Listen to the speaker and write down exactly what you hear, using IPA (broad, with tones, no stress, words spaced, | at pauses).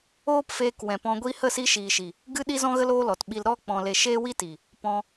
oː˦pfeː˧k wɛ̃˨pɔ̃˧ɡʷi˦ hə˦˨si˧ʃiː˨ʃi˨ | ɡɨ˦ ɗi˦zɔ̃˦ɣə˦l oː˦lɔ˨tɓi˧l ɾɔ˦ k͡pɔ̃˧le˧ ʃeː˦wi˦ti˨ | pɔ̃˧